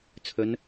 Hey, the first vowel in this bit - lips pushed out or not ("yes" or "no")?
yes